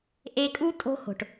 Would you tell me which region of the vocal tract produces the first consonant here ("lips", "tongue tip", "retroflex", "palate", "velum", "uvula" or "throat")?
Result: throat